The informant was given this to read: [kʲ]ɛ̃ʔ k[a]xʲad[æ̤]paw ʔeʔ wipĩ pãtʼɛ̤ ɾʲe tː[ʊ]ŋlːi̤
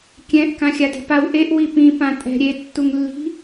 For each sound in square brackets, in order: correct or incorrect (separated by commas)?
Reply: correct, incorrect, incorrect, incorrect